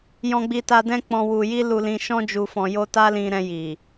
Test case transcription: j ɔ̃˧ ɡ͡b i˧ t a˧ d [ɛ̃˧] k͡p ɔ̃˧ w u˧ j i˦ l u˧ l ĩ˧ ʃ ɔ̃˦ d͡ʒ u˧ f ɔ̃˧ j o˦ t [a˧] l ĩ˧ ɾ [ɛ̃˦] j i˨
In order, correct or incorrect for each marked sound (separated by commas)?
incorrect, incorrect, incorrect